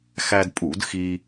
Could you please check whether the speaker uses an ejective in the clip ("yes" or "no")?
yes